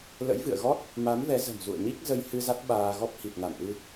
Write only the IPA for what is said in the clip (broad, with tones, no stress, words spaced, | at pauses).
lə̰˧˥jvɨ̰˧˨ə̯ɣɔ˦˥t̚ | ma˨˦mvɛ˨˦zə̤˨˩m zṵ˧˨ə̯ɲi˦˥k̚ zə˧jhɨ˧ za˦˥t̚ɓaː˧ɣɔ˦˥p̚ hi˨˩t̚na˧˩mʔɨ˧